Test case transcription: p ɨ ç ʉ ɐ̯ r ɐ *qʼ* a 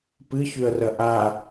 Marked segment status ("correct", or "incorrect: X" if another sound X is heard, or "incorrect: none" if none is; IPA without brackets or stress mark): incorrect: ʔ